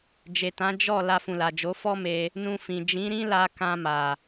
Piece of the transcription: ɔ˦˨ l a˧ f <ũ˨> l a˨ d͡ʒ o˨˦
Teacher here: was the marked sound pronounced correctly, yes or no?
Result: yes